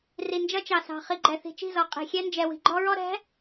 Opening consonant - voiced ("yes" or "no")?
yes